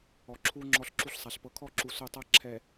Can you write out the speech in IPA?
ɔ˨ ǁʰu˦ ŋ͡ǁɔ˦ɬǁu˦ɬsˤa˨ɬ pɤ˨kʰɔ˦˨ǁu˨ so˦˨tˤa˦ ǁʰɛ˨

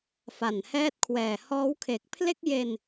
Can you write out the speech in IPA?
fa˨˩nhɛː˥˩t̚kʰwɛː˨˩ hɔː˦˥wkʰe˨˩k̚ pʰle˥˩k̚je˧n

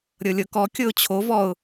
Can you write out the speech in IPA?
ɾʲɤlʲɤkɔ kʲɤʊ̯t͡ɕʰo vɔʊ̯

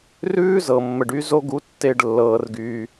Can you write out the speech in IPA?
rʉː˦zɤ˨ mːə˨ɖy˧zo˧ɡu˨˦ tːe˨ɖ lːɤː˧rɡyː˧

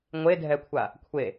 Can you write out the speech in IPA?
ŋʷedʱɛkʷʰa | kʷʰe

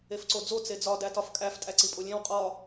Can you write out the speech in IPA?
efǀod͡zo t͡sed͡zɒ dætɒfkʼæf tʼæǀipʼolʲẽw qʼɒ

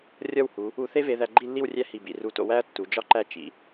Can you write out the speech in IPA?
rʲɒ˥˧whu˩˧ | u˧θe˥ve˧ ðæ˧ɡ͡ǃi˥˧lːi˥˧w rʲæ˥ hi˧˩bḭ˩˧r u˧˩to̰˧ wæ˥ɐ̯tːu˩˧d͡ʒɒ˥ǃæ˥˧ t͡ʃḭ˩˧

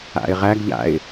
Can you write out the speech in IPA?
a̰ɪ̯ʁæɡʎa̰ɪ̯

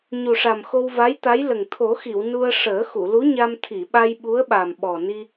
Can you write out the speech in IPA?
ɲu˨˩ʂa˨˩m xo˧wva˧˥jt̪a˧˥jlə˨˩ŋ t̪ʰo˨˩˦xi˨˩˨w nu˧ə̯ ʂəː˨˩˦xu˨˩˨lu˧˥ɲa˧m t̪ʰi˨˩˨ɓa˧j ɓu˧˥ə̯ɓa˨˩mɓɔ˨˩ni˧

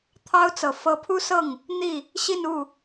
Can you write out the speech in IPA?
t̪ʰɑ˥ʊ̯t͡sɤ˨˩ fɤ˧˥pʰu˥sɤ˥˩ŋ | n̪i˥˩ | ɕi˥˧nu˥˩

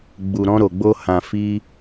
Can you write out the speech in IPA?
ɡ͡bu˨ɾɔ̃˧ɾo˨ɡ͡bo˧ hã˨fi˧

